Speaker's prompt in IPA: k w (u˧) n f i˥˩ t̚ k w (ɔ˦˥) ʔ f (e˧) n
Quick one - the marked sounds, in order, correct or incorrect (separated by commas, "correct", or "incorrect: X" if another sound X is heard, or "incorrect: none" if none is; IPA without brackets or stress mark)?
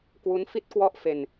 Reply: incorrect: u˦˥, incorrect: ɔ˥˩, correct